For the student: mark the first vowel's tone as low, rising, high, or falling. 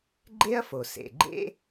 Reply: high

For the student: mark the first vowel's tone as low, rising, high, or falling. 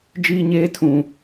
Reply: high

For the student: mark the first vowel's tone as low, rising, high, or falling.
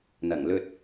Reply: low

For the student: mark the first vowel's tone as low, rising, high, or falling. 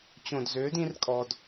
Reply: low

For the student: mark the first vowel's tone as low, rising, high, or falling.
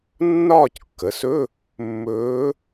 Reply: falling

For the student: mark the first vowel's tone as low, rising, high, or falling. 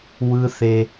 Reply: high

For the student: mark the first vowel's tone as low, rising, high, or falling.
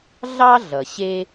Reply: high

